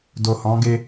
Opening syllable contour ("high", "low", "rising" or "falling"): low